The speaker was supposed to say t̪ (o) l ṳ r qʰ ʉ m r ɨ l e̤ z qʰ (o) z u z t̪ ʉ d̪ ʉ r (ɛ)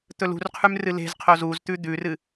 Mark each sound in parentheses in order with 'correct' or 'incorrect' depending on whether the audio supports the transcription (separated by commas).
incorrect, correct, incorrect